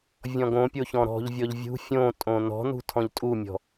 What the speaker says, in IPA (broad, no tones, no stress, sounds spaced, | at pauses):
vʲ ɔ̃ ɡ õ pʲ o ç ɔ̃ ɾ ɔ̤ ʎ vʲ ɔ ʎ vʲ ṳ fʲ õ tʼ õ n ɔ̤ n ṳ tʰ ɔ̃ ʎ tʼ u mʲ ɔ̤